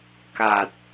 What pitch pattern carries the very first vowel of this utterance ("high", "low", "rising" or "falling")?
low